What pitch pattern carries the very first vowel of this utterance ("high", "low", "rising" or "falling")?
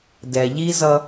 low